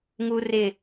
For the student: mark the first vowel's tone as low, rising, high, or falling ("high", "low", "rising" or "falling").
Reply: high